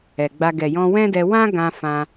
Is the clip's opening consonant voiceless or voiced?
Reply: voiced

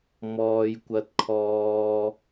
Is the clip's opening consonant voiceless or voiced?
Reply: voiced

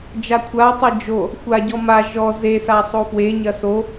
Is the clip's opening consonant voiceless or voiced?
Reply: voiced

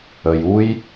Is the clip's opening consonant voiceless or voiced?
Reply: voiced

